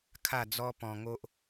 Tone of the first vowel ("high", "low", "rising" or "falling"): falling